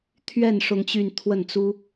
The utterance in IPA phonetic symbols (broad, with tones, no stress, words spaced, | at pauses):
t̪ʰɥɛ˥˧n ʂʊ˥˧ŋt͡ɕy˥˧n t̪ʰwə˥˩nt͡su˥